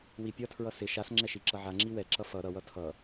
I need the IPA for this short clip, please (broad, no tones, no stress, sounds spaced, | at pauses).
w i pʲ ʌ tʰ ɹ ʌ s ɪ ʃ a s ŋ͡ǁ ɛ ʃ i ǁ ʌ ʕ a ŋ͡ǁ i w ɛ ǁ ʌ f ʌ ɾ ʌ w ʌ tʰ ʌ